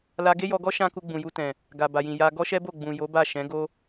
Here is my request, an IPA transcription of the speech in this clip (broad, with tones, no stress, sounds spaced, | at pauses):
l a˧ ɡ e˦ j ɔ˧ ɡ ɔ˦ ʃ ã˦ k u˧ ɡ͡b ũ˨ j u˧ t ɛ̃˨ | ɡ a˨ b a˨ j ĩ˨ j a˧ ɡ ɔ˦ ʃ ɛ˦ b o˦˨ ɡ͡b ũ˨ j o˨˦ b a˦˨ ʃ ɛ̃˨˦ ɡ o˦